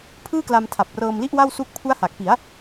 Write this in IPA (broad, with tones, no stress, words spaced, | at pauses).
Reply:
pʰɯː˥˩kla˧m tʰa˨˩p̚ rɤː˧mli˥˩ʔwa˥˩wsu˦˥k̚ pʰu˦˥a̯ha˨˩k̚pi˩˦a̯